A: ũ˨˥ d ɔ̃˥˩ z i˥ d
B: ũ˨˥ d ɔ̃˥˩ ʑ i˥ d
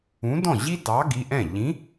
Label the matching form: B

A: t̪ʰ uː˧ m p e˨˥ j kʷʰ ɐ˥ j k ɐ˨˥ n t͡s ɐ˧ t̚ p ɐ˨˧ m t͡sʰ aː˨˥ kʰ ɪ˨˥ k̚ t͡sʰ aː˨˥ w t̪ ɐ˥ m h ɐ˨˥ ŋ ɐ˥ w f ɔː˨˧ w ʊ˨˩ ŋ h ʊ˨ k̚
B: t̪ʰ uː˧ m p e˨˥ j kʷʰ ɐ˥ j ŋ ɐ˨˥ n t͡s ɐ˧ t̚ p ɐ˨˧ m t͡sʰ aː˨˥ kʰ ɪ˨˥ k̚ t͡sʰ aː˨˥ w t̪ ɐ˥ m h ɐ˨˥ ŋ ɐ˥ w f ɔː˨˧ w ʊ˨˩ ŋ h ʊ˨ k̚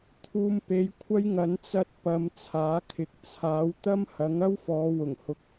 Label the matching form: B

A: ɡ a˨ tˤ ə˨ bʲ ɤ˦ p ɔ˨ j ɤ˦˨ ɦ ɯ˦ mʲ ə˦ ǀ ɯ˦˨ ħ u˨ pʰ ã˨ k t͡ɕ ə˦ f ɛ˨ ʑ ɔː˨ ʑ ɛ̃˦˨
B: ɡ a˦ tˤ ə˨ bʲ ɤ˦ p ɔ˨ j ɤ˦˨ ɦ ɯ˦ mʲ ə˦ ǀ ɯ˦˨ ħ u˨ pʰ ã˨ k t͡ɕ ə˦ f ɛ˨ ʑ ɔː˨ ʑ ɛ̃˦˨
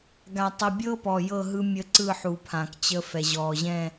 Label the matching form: A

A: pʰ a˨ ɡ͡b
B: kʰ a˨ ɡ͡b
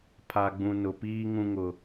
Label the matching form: A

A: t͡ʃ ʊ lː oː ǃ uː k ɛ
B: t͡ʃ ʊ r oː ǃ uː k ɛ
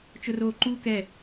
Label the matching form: B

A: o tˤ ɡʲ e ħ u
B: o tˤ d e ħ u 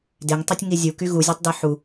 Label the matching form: B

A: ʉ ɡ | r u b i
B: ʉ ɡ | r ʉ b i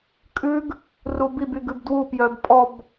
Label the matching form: A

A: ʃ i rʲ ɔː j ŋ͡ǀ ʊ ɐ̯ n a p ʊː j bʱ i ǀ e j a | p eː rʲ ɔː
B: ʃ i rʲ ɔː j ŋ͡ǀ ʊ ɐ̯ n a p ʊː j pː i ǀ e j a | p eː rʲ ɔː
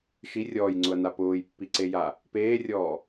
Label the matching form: B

